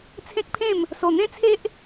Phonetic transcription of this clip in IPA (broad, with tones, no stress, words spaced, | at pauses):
t͡sʰẽ˦k̚pʰẽ˥˧m | so˨˩n̪ẽ˦t͡sʰe˦ʔ